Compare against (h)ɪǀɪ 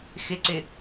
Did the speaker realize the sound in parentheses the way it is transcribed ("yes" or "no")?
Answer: no